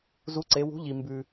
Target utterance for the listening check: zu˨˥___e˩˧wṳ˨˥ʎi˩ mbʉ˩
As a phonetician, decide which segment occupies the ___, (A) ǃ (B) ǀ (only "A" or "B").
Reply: B